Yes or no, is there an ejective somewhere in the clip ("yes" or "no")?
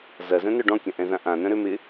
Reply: no